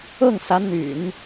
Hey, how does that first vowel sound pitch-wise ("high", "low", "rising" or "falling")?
falling